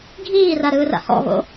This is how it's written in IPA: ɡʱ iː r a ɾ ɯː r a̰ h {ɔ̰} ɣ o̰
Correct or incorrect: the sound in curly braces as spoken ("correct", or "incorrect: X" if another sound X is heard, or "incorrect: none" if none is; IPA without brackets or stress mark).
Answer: correct